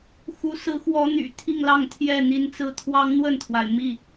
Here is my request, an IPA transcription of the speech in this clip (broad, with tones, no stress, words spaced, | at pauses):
xu˨˦ sɹ̩˨˦xwɔ˨˦ n̪y̰˨˩ t̪ʰi˥˨ŋlɑ˥˨ŋ t̪ʰjɛ˥˨n̪i˨˦nt͡sɹ̩˦ t̪ʰwɑ˦ŋn̪wə˥˨nt̪ʰwa˩ɪ̯ mi˥˨